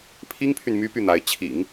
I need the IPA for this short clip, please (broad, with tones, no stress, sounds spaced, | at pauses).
pʰ i˥ ŋ pʰ y˨ n m y˥ p y˥˩ n̪ a˧˥ ɪ̯ t͡ɕʰ ḭ˨˩˦ ŋ